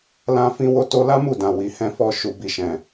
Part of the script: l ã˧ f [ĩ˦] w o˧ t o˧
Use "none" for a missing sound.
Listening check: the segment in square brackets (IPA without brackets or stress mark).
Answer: ĩ˧